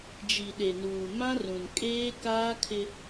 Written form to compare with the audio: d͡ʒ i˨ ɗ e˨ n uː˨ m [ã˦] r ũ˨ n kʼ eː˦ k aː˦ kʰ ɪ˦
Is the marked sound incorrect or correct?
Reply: correct